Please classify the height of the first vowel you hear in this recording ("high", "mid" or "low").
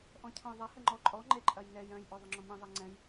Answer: mid